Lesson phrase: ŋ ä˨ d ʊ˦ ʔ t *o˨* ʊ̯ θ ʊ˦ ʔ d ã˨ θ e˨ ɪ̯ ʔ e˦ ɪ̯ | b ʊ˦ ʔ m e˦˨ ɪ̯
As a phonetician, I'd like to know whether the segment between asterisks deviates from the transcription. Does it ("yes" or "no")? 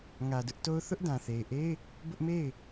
yes